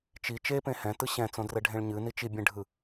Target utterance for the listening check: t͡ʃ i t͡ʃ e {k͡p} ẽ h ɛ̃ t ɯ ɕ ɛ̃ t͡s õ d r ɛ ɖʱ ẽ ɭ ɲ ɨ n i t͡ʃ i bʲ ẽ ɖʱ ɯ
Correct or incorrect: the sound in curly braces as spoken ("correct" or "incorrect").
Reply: incorrect